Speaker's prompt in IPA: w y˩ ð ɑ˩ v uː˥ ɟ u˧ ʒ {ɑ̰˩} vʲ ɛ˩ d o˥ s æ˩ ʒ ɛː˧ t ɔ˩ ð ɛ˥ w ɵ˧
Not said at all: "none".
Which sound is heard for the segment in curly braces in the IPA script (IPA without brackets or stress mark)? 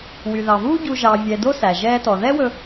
ɑ˩